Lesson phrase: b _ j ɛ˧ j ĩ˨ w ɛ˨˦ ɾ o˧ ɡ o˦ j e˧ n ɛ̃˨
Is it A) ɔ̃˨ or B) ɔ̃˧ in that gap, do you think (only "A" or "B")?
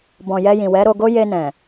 A